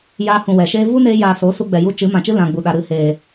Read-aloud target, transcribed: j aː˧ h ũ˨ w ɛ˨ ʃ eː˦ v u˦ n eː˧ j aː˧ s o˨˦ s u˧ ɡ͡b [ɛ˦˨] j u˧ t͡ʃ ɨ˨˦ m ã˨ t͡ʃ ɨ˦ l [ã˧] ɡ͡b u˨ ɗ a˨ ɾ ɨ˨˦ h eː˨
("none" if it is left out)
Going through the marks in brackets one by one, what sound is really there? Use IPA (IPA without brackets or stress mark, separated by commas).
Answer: ɛ˨, ã˨